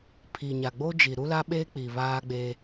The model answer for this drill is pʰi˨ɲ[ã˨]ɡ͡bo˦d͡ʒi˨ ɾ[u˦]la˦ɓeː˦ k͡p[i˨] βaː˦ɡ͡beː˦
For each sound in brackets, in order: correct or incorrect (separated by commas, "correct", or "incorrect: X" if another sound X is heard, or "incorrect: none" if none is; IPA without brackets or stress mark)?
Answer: incorrect: a˨, correct, correct